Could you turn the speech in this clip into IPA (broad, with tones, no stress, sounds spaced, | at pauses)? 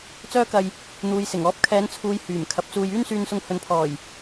t͡s œː˥ k ɐ˧ j | n̪ uː˨ j s ɪ˨˩ ŋ ɔː˨˥ p̚ kʰ ɛː˨˧ n t͡sʰ uː˨ j h yː˨˩ m kʰ ɐ˨ p̚ t͡s uː˧ j yː˥ n s yː˧ n s ʊ˧ ŋ h ɵ˨ n pʰ ɔː˨˩ j